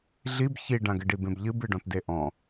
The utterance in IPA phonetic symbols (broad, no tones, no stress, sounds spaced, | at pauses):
ɮ i b ç i ɖ ã ɡ ɘ ɖ i b ẽ b ʎ ɨ b ɨ ɖ ɔ̃ t d e ʔ ɔ̃